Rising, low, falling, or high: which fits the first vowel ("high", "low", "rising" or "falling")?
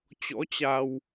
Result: rising